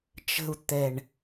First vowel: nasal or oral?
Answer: oral